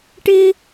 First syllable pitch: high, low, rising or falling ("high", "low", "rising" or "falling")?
high